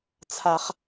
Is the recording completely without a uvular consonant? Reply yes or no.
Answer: no